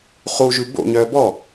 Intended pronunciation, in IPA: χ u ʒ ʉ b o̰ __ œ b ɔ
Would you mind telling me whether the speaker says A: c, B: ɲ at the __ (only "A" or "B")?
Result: B